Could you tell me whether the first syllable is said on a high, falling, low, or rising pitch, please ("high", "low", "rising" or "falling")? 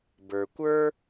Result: low